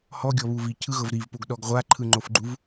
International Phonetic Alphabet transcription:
hɔɡʲɔβu vicʰɯɣɤv ɾivpoɡɗɔɡ ʁʷaǃʰɯŋ͡ǃofɡ͡ǃuv

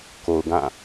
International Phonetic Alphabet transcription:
ko˨ʊ̯ɡã˦˨

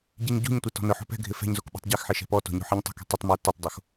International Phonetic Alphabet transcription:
ɟiɲɟṳɲtʷe tɔ̤nʊħo̤ pɛ̤ɡʱɪ fɛ̤ɲzok ɓṳtˤɟɛxħɪ ʃɛ̤pɔto̤ ɲo̤ħiɲtˤo̤kɛ̤ tˤʊtˤmɛ tʊtˤdˤox

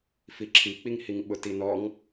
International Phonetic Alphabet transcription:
fiǁʰik͡piŋhiŋ ɓʊtinɔŋ

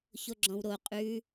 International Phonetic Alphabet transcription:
çoɡ͡ǁɔ̃wɾo qʼʉ

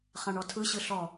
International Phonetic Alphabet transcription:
χãɳɔtʰɯɕɯ ɬɔ

